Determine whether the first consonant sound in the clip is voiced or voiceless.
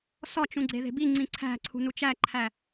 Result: voiceless